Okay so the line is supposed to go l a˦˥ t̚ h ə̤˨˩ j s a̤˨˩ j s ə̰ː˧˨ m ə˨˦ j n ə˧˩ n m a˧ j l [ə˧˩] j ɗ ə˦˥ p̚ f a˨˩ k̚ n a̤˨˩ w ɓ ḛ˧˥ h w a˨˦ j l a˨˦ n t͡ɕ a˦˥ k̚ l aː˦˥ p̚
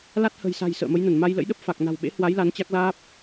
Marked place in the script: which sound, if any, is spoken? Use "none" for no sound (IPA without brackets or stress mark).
ə̰˧˥